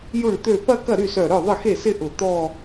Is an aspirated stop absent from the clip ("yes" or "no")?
yes